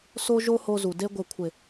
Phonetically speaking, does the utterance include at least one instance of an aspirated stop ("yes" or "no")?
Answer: yes